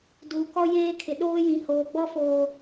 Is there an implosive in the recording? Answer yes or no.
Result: yes